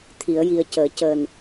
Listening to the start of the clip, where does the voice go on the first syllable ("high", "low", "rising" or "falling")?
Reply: low